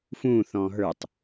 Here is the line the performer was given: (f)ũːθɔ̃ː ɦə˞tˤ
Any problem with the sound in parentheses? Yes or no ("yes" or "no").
no